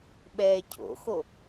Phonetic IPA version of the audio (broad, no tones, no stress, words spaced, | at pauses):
ɓɛːcʰo̰xo